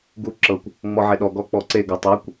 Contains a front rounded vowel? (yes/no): no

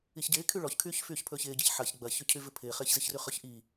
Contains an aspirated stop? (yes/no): yes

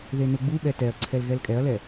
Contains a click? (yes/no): yes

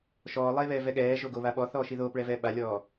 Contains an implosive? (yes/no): yes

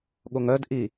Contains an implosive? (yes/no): yes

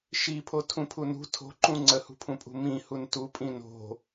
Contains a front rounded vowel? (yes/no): no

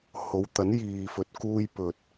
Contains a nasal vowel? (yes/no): no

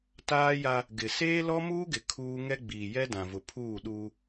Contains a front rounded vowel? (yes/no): no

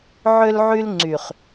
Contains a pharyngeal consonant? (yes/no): yes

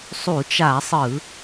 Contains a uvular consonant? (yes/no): no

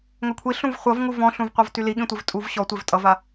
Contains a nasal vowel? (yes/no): yes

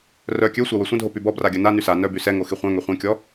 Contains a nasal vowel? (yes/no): yes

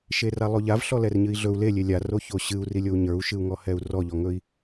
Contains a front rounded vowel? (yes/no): no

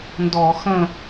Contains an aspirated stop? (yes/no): no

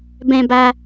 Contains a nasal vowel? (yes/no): yes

